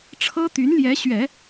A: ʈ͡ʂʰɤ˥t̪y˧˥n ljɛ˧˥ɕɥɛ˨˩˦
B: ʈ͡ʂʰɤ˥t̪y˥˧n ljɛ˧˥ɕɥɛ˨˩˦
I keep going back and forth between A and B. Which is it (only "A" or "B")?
A